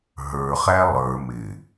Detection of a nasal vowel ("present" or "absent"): absent